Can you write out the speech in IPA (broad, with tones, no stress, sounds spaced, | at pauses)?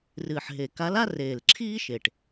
r ɨː˨˩ ħ ɦ e˨˩ k a˧˥ l a˥ r eː˨˩ l ǁʰ iː˥ ʃ e˨˩ ʈ